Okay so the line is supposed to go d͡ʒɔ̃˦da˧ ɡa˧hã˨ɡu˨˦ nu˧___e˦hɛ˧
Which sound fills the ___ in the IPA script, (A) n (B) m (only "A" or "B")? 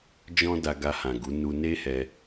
A